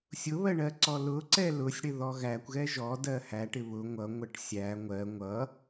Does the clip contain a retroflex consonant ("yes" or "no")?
yes